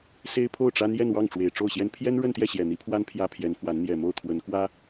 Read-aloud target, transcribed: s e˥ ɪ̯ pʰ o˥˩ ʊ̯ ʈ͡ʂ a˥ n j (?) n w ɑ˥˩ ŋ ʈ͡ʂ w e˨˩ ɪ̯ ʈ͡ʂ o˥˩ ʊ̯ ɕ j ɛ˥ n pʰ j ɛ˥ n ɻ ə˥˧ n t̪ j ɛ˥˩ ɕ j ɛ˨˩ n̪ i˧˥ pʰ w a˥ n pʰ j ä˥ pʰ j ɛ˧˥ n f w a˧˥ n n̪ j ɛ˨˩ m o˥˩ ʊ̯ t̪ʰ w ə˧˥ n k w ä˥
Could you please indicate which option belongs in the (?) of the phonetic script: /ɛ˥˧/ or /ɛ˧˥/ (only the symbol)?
ɛ˥˧